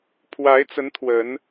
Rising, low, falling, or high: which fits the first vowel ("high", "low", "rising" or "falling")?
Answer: rising